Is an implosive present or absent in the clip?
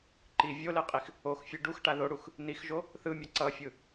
absent